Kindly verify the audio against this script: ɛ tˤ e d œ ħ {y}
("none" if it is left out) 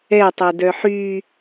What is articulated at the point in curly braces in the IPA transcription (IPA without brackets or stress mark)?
y